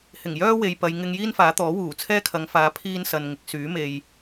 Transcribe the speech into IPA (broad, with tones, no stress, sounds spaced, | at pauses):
h ɪ˨˩ ŋ j œː˥ w e˨ j p ɐ˨˧ j ŋ ɪ˧ ŋ j iː˥ n f aː˨˥ t̪ ɔː˨˥ w uː˨˩ t͡sʰ ɛː˥ kʰ ɐ˨˧ ŋ f aː˨˧ pʰ iː˥ n s ɐ˨ n ŋ ɪ˨˥ k̚ s yː˨˥ m e˨ j